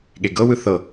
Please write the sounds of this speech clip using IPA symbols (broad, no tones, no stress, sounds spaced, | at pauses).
ɠ e ɡ ɤ w ɯ θ ɤ